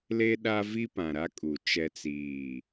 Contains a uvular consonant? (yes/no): no